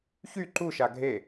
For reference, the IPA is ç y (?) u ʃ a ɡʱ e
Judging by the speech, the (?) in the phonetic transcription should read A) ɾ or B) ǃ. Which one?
B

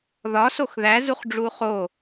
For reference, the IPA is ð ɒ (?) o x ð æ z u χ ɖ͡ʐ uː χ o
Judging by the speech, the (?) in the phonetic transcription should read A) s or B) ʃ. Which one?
A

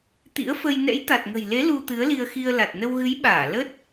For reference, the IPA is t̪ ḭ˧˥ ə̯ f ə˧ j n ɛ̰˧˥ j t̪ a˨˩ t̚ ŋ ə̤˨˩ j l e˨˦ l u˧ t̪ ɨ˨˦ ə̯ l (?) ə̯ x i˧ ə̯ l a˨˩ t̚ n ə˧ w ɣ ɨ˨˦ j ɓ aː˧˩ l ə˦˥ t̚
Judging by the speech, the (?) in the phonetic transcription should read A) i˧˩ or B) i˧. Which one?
B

